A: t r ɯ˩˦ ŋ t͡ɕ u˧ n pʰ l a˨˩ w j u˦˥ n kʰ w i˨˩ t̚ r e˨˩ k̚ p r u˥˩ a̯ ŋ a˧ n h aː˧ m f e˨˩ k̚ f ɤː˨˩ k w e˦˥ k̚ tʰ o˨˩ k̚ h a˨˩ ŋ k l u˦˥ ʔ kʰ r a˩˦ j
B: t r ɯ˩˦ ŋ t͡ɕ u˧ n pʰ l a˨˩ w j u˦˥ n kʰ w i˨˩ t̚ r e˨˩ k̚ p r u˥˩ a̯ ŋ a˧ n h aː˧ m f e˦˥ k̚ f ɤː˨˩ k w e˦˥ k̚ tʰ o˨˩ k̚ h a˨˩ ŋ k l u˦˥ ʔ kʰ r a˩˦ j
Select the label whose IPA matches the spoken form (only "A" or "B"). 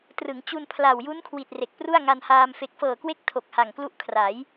A